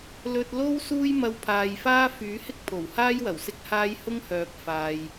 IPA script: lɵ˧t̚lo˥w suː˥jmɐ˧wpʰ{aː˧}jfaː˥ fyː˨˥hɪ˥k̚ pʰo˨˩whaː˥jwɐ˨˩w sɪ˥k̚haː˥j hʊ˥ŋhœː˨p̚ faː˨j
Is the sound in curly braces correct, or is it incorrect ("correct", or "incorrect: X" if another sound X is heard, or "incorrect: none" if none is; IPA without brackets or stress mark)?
incorrect: aː˨